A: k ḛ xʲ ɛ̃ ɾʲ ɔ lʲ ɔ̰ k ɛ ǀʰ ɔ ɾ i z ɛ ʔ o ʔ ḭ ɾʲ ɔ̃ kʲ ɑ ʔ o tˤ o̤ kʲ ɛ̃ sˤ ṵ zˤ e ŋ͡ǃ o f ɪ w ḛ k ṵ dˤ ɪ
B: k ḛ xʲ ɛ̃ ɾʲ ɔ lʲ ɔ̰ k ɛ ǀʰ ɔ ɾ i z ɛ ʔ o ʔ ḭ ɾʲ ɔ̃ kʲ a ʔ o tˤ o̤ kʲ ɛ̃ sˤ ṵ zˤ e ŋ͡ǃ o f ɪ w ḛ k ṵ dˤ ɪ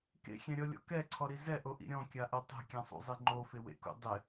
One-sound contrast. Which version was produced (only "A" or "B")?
B